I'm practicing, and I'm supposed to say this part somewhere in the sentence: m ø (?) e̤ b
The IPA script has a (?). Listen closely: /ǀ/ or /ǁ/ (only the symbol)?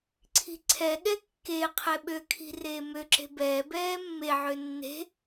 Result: ǁ